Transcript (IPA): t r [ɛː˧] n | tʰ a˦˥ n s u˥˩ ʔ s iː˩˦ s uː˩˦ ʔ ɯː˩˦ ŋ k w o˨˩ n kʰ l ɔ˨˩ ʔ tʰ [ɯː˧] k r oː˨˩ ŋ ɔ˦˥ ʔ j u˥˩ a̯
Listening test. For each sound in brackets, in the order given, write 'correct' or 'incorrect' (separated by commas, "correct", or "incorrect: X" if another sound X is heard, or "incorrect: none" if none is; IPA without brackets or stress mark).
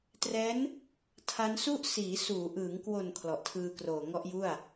incorrect: ɛː˦˥, correct